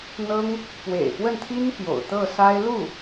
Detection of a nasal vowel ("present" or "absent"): absent